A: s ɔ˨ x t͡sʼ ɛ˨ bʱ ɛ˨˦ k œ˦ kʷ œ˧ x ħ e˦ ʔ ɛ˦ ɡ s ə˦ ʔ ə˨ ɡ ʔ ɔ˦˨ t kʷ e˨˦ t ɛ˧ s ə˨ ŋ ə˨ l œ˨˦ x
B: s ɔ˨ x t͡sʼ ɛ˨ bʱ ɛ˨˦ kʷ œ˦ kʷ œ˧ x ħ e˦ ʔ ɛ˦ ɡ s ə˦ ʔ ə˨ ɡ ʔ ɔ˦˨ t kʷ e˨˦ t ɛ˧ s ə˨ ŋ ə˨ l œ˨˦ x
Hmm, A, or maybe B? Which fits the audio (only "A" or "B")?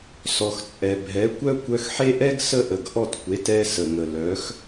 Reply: B